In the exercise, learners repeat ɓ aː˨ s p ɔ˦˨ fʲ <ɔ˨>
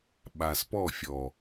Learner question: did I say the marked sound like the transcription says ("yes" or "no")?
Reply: yes